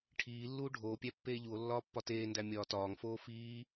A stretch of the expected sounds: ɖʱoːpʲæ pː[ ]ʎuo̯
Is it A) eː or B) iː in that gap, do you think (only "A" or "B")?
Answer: A